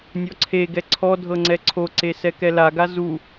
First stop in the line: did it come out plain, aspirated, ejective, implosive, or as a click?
click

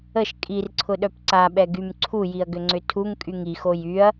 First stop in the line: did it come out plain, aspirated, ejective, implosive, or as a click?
ejective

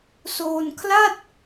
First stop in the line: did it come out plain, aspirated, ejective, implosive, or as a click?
aspirated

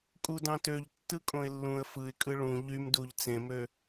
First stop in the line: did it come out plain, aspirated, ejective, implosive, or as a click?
ejective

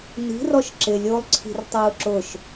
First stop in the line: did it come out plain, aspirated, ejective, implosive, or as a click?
click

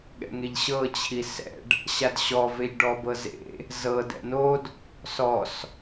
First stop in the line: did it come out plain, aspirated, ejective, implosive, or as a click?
implosive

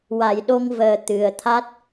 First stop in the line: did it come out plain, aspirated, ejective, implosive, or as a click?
implosive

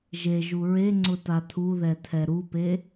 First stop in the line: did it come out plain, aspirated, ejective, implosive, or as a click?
click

